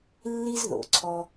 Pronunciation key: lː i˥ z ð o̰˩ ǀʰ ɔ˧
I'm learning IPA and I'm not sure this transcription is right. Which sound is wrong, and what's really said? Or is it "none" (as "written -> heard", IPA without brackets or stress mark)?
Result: none